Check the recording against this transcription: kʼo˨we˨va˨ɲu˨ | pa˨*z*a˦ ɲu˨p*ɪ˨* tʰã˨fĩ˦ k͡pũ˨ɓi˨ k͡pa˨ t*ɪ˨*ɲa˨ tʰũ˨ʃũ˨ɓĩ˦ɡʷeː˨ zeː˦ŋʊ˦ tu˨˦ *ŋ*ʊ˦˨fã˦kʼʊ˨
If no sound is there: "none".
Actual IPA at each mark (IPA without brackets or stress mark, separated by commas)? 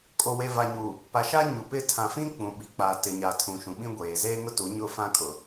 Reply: ʃ, ɪ˦˨, ɪ˨, ɲ